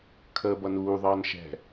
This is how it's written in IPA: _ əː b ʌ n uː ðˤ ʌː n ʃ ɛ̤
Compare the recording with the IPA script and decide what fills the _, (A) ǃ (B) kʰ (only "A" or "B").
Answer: B